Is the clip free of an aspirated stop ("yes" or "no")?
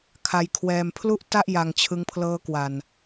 no